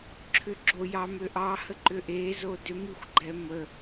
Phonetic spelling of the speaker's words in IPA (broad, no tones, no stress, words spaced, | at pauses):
ǁʰʏɡ͡ǁo jɑmʏʔɑ həǃʏʔezo dʏmixʷɡ͡ǃɛ mə